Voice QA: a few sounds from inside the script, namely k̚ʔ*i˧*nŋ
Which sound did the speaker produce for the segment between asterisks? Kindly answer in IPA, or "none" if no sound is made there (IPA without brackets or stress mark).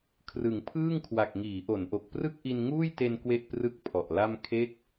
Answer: i˧